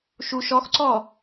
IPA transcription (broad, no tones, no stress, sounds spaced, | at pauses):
ʃ u ʃ ɔ x ǀ ɔ